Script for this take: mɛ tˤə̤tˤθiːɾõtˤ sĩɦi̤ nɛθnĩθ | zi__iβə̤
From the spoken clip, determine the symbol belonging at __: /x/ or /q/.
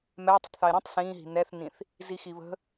x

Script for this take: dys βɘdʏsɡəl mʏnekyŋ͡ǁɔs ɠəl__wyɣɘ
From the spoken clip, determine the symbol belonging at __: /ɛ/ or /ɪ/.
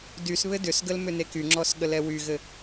ɛ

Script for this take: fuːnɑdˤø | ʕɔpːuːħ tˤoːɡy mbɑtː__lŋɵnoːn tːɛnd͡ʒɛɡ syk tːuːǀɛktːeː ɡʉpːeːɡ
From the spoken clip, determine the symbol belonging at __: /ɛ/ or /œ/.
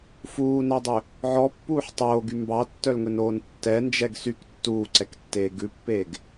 œ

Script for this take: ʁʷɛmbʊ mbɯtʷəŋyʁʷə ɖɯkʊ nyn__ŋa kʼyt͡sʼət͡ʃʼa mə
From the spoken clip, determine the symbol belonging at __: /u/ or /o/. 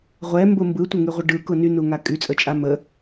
u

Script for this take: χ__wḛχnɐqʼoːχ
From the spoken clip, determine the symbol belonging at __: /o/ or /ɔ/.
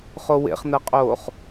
o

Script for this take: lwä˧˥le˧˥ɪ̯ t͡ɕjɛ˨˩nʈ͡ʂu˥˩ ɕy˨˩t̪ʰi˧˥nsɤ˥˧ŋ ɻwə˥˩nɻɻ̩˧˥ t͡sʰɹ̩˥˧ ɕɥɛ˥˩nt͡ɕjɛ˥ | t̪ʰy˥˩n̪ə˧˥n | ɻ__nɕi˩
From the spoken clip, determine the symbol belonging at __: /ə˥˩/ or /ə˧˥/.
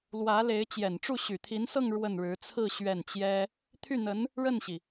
ə˥˩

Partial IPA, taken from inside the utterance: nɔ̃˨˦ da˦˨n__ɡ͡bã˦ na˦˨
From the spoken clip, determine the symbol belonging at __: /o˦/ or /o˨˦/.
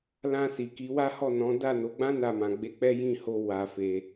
o˨˦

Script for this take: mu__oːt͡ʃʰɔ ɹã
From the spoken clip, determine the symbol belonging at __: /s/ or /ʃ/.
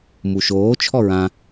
ʃ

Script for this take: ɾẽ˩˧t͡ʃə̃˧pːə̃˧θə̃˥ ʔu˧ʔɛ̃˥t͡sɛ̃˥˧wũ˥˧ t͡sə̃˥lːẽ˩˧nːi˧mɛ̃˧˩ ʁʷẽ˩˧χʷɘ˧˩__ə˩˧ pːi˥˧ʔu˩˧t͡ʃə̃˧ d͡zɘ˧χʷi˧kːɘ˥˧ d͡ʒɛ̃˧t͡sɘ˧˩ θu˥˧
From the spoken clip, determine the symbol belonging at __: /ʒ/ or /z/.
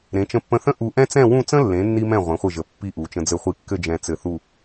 ʒ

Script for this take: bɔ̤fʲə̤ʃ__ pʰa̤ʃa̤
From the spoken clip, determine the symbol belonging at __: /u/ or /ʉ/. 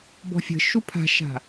u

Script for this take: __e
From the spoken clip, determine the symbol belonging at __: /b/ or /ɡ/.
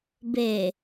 b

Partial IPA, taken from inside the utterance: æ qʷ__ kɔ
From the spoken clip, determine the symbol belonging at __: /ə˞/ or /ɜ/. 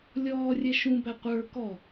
ə˞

